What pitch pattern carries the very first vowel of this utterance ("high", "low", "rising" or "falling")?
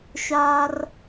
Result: high